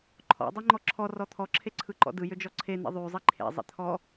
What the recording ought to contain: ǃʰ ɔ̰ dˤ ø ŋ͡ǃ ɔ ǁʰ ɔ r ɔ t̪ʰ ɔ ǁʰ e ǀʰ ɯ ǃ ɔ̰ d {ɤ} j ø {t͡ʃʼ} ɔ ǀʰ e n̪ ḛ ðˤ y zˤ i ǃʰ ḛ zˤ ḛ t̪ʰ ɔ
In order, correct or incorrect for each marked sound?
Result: incorrect, incorrect

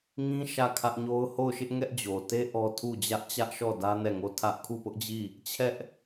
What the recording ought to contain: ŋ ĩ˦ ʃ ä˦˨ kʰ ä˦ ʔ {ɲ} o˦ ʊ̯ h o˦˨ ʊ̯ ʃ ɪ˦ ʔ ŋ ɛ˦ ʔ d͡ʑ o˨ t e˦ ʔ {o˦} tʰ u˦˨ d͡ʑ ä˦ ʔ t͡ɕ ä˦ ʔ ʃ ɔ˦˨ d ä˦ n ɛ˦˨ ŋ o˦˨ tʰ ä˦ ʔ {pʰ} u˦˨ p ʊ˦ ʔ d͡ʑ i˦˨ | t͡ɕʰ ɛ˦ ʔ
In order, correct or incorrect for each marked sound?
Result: correct, incorrect, incorrect

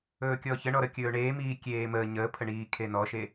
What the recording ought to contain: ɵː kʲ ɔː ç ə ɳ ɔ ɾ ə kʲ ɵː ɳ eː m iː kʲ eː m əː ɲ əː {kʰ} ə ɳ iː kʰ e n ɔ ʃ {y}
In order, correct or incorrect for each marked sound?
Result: incorrect, incorrect

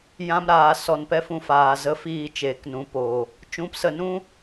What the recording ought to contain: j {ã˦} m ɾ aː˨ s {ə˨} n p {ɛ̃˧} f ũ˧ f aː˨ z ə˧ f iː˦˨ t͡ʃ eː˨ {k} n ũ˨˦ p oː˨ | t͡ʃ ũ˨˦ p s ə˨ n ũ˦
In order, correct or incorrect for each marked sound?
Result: correct, incorrect, incorrect, correct

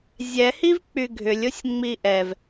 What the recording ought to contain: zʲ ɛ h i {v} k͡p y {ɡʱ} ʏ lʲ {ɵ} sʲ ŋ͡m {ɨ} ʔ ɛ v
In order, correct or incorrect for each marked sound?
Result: correct, correct, incorrect, incorrect

